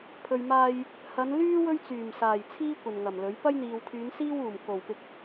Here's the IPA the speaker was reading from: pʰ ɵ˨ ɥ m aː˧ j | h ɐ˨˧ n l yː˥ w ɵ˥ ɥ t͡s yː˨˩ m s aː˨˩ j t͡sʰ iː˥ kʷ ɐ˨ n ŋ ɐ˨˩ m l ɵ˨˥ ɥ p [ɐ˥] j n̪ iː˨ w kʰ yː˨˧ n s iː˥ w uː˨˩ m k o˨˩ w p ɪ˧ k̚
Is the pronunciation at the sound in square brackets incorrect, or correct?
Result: correct